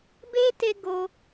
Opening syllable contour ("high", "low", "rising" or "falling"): high